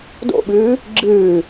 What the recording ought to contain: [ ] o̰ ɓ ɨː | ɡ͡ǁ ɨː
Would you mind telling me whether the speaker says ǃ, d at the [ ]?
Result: d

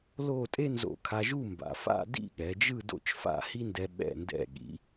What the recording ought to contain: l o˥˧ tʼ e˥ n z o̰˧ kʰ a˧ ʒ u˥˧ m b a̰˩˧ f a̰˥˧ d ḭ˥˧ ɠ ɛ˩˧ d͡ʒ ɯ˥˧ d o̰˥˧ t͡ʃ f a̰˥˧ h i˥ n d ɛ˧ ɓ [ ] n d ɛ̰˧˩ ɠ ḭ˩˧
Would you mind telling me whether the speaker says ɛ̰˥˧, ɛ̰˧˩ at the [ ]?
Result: ɛ̰˧˩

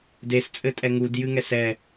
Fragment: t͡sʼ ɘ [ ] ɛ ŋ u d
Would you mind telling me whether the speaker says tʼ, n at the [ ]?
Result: tʼ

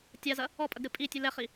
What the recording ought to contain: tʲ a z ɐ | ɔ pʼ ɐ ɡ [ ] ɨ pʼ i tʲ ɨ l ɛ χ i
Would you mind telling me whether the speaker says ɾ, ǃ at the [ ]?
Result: ɾ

